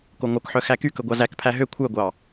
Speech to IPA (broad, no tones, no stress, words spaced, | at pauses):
koŋokħœ xækykɵ ɡʷɑzækpʰæ ɦø kʷʰœɡʷɑ